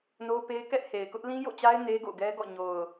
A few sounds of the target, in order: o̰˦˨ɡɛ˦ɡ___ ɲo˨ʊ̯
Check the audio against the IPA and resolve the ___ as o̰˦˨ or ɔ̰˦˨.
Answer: ɔ̰˦˨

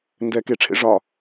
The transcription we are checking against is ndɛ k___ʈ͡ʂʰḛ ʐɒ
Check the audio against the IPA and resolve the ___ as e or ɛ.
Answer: e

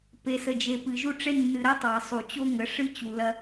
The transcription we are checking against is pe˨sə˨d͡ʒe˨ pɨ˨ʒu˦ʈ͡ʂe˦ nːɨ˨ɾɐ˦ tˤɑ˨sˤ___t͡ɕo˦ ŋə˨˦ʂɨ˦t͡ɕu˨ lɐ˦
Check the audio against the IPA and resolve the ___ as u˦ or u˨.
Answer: u˨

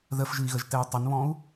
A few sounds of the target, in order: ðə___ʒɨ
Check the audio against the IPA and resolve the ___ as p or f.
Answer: f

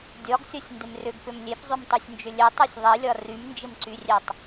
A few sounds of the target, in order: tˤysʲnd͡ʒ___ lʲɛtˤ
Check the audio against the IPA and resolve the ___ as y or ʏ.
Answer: ʏ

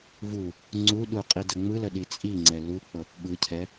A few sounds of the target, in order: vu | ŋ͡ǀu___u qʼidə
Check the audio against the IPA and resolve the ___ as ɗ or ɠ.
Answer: ɗ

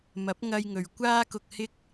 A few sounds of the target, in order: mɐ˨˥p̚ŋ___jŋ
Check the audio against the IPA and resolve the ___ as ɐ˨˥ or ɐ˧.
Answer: ɐ˧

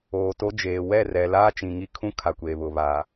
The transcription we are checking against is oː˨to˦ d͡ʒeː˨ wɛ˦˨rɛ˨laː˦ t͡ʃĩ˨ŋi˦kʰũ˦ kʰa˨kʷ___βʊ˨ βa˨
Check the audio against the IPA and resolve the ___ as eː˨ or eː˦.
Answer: eː˨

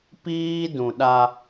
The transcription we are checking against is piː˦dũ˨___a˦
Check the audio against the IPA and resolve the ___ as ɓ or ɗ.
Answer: ɗ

